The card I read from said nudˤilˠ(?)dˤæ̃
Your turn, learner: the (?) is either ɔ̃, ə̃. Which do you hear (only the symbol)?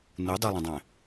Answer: ə̃